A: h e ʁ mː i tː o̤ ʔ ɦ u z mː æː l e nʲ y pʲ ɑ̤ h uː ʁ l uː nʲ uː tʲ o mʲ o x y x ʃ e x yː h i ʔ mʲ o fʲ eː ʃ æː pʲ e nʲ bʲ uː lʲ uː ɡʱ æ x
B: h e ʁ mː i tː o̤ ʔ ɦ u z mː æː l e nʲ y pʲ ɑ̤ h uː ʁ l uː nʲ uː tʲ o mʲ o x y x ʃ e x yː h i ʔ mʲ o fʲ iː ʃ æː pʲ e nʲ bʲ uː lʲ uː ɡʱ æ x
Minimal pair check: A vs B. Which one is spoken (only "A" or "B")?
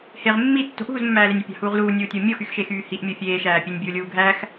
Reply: A